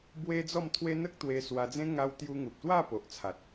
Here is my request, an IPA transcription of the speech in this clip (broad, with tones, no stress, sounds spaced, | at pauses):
b w e˦ d͡z ɔ˥˧ m t̪ʰ w e˦ n̪ ə˦ k̚ t̪ w e˧ s w a˧ d͡z ẽ˦ ŋ a˧ w t̪ j u˧ ŋ u˨ p̚ t̪ w a˥˧ p o˨ ʔ t͡sʰ a˨ t̚